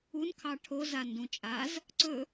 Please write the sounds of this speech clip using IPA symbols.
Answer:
un kʰɑʈʰo zandũt͡ʃʼaz | ǀɵ

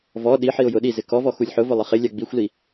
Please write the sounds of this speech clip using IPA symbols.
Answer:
vɔ ɗiħiʊ̯ jʊɗi zɪkɔvɔ xulʲħʊvʊ lˠɪχɪ lʲaɡ͡bixʷli

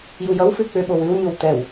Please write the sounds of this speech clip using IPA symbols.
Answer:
jujʌwfʉ k͡pʏɓow ʉwɲow tɛw

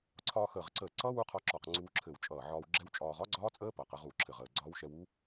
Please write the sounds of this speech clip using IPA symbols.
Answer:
ǀʰɒː˧xəː˧˩ʁǀəː˧˩ǀʌː˦˥ wu˦˥qʰɒ˧ǁɒ˧˩q ŋ͡ǀuː˧ǁʰɘ˧˩wt͡ʃʼʌː˧˩ʕɒː˧w ɡ͡ǁɛ˦˥wt͡ʃʼɒː˧ʁ ɒ˦˥ɡ͡ǀɒː˦˥t͡sʼəː˦˥ pʌː˧˩qɘ˧ʁ uː˧˩ǁʰɘ˧˩ʁəː˧˩ɡ͡ǀɒː˦˥w ʃɛ˧w u˦˥

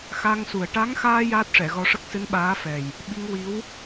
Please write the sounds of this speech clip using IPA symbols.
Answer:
xa˧ŋsu˨˩ə̯ ʈa˧˥ŋxaː˧ jaː˦˥t̚ʂɛ˨˩˨ɣɔ˧ʂə˦˥k̚ sɨ˧˥nɓaː˧˥fɛ˨˩j | ɓi˧ŋwi˧˥w

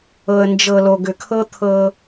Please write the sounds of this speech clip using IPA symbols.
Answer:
ɤ˨ə̯nd͡ʒɤ˨ lo˨ɡʏ˨kʰɤ˦ t̪ʰɤ˦

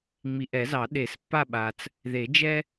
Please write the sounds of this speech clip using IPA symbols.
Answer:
ŋ͡mi˨ʔɛ˨˩˦zɑ˨˩˦ ɗe˨˩˦spːa˦˨ ɓa˨t͡s | ðe˨˩˦d͡ʒɛ˦

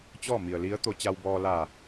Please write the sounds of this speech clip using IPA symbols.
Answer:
t͡ɕɔː˥˨mi˩ə̯li˧˥ə̯ t̪o˧t͡ɕa˧wbɔː˧ la˧˩

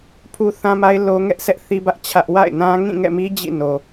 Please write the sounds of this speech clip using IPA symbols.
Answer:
pʰu˦θã˦ma˦ɪ̯ lo˦ŋɛ˦ʔsʰɛ˦ʔ θi˦bä˦ʔ t͡ɕʰä˦ʔ wa̰˦˨ɪ̯nã˦ ŋĩ˦˨ŋɛ̰˦˨mi˦ d͡ʑḭ˦˨no˨

